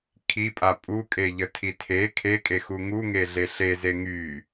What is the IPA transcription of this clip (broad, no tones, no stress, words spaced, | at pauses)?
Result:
kʰipʼa pʼukʼeʎətʰi tʰe kʰekʼexu ŋuŋeɮe ɬeze ŋy